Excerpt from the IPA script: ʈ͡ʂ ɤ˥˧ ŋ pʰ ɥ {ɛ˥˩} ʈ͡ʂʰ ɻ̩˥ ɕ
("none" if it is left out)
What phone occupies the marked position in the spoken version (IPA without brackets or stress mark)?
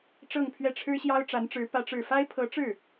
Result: ɛ˥˩